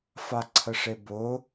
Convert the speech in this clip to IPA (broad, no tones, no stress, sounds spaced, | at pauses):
f a ǀʰ ə ʂ e b ʊ